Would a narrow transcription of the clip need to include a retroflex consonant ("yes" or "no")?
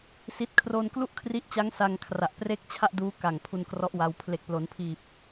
no